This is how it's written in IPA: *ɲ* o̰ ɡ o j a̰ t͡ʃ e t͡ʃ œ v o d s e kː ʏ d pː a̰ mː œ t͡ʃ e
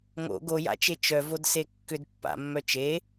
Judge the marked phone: incorrect: ŋ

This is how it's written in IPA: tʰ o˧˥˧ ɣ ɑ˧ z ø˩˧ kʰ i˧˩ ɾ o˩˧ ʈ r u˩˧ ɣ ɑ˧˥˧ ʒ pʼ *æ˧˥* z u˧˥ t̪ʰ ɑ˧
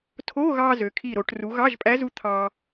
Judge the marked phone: correct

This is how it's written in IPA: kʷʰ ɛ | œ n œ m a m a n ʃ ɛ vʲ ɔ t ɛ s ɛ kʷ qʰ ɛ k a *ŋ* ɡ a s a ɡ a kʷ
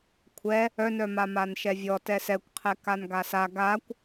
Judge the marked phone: incorrect: n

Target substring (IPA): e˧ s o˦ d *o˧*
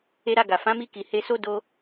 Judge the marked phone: correct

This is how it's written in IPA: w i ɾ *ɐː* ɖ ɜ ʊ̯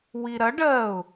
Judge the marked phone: incorrect: ɐ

